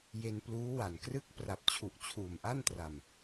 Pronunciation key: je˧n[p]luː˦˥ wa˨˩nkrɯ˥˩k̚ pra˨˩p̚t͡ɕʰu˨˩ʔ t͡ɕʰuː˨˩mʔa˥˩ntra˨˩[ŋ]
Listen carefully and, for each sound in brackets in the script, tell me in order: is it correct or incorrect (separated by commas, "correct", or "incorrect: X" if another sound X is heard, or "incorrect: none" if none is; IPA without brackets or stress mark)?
correct, incorrect: m